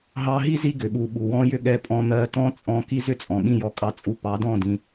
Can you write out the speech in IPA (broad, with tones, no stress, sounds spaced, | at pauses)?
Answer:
ɦ ɑ˧ ɦ i˦ z i˧ ɡ ʏ˨ ɓ u˨ ɓ u˨ w ɔ̃˦ j ʏ˦ ɠ ɛ˧ pʼ ɔ̃˧ n̪ ɜ˧ t ɔ̃˦ t͡sʼ ɔ̃˧ k i˦ z ʏ˦ t͡sʼ ɔ̃˨ ɠ ĩ˦˨ j ɔ˧ kʼ ɑ˧ t͡sʼ u˧ p ɑ˨˦ d ɔ̃˦˨ d ĩ˧